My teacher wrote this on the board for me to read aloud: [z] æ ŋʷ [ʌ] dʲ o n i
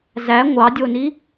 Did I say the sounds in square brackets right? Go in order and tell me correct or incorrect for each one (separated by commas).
correct, incorrect